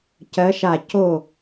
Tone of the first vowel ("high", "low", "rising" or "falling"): rising